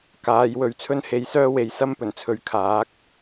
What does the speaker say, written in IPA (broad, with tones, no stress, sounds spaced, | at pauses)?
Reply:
k aː˨˧ j w ɵ˨˥ ɥ t͡sʰ ɵ˥ n h e˨˧ j s œː˥ w e˨˧ j s ɐ˥ m p ɵ˨˩ n t͡sʰ ɵ˨˥ ɥ kʰ aː˨˥ k̚